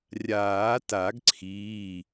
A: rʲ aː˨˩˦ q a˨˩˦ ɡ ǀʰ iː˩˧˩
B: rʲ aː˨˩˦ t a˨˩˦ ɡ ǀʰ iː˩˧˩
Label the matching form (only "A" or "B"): B